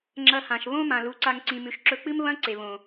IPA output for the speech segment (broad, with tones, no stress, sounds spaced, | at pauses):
ŋ͡ǁ ɐ˧ h ã˨ ʃ β õ˦ m ã˨ l u˨˦ ǀ a˧ ŋ ǀ ĩ˨ m ʉ˨ ʃ ǁ ɵ˧ k͡p ɨ˦ m β ɐ̃˦ ǀ e˨ β õ˨